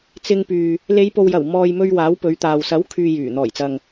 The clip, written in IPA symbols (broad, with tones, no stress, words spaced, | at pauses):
t͡sɪ˧ŋpyː˨ | le˨˧jpo˨wjɐ˨˩w mɔː˨jmɵ˧ɥ waː˨˥wpɵ˨˧ɥt̪aː˨w sɐ˨˥wkʰyː˨ jyː˨˩ n̪ɔː˨˩jt͡sɐ˨ŋ